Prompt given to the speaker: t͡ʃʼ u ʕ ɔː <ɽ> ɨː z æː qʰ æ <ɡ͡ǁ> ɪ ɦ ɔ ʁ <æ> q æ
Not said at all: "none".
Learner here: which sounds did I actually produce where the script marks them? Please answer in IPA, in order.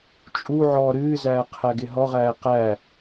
ɾ, ɡ, æː

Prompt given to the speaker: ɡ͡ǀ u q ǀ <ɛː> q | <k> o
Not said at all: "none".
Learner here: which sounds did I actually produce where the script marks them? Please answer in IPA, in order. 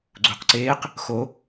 eː, x

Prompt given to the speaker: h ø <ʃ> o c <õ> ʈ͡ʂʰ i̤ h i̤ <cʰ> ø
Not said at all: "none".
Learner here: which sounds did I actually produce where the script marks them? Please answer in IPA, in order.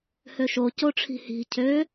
ʃ, o, cʰ

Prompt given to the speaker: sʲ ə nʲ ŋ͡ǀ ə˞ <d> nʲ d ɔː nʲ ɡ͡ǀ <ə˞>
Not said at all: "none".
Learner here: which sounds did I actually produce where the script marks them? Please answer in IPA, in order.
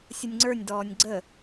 none, ə

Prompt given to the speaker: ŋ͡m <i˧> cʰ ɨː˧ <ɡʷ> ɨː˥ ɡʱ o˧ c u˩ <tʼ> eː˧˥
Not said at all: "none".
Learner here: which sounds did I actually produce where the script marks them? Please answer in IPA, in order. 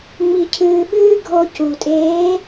i˧, ɓ, tʼ

